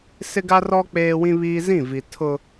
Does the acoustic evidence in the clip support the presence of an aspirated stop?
yes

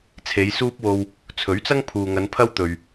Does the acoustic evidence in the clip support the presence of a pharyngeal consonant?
no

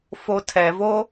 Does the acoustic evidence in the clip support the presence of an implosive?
no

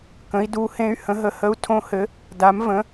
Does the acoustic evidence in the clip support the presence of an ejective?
no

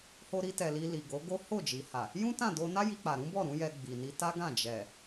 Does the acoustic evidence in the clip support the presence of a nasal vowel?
yes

